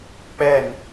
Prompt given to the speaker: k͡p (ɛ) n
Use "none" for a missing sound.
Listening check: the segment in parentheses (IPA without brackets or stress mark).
ɛ